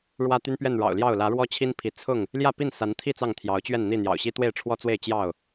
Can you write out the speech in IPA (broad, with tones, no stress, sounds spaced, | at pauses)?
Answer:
ɻ w ä˦ t̪ y˦ n p ɥ ɛ˥˨ n ɻ ɑ̰˨˩ ʊ̯ l j ɑ˥˨ ʊ̯ l ä˨˦ ɻ w ɔ˦ t͡ɕʰ i˦ n pʰ i˨˦ t͡sʰ ʊ˥˨ ŋ | l j ä˥˨ p i˥˨ n s a˨˦ n t̪ʰ i˥˨ t͡s ɑ˥˨ ŋ t̪ʰ j ɑ˨˦ ʊ̯ t͡ɕ ɥ ɛ˥˨ n n̪ i˥˨ n̪ j ɑ̰˨˩ ʊ̯ ɕ i˦ t̪ w e˥˨ ɪ̯ ʈ͡ʂʰ w ɔ˦ t͡s w e˥˨ ɪ̯ t͡ɕ j ɑ˥˨ ʊ̯